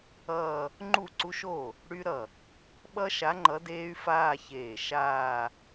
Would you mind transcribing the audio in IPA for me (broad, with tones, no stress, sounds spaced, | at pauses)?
ʌː˥˧ | ŋ͡ǃ u˥˩ ǀ u˦˥ ʃ o˥˩ | ɽ y˦˥ ɾ ʌ˧˩ | ɓ ʌ˦˥ ʃ a˨˥ ŋ͡ǃ ʌ˨˥ d eː˦˥ y̯ f aː˥˧ ç eː˧˩ ʃ aː˥˧